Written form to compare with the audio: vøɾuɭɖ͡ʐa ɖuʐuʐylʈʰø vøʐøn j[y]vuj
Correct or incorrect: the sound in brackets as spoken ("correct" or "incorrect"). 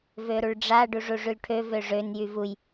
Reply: correct